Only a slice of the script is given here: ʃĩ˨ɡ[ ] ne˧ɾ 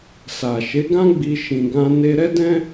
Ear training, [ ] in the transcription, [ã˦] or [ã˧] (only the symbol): ã˧